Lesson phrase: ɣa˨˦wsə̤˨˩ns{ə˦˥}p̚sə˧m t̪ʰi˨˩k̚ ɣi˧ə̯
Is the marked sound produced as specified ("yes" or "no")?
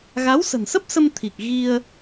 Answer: yes